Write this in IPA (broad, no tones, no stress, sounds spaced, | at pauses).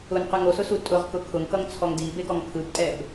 ʊ n q ɯ ŋ o s ʊ s u tʼ ʊ ʁ k ʊ kʰ ʊ ŋ k ʌ ŋ t͡sʰ ɔ ŋ d i b e ɡ ɔ ŋ kʰ ɯ b tʼ ɛ b